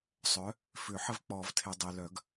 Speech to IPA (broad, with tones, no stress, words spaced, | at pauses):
sˤœ˨˥ | fʏ˨˩˦ħə˦vk͡pɔ˨˩˦vtʰe˨ dˤe˨lœ˨˩˦ɡ